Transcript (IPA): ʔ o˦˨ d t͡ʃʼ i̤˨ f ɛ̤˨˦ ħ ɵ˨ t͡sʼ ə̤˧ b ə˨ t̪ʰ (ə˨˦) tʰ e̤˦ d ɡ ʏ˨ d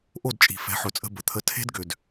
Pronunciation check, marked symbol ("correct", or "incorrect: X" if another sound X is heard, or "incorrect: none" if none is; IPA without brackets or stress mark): incorrect: ə˧